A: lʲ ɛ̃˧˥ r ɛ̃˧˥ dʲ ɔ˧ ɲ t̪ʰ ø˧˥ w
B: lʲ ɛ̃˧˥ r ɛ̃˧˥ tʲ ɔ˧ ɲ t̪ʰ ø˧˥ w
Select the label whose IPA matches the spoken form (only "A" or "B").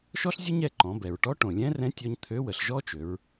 B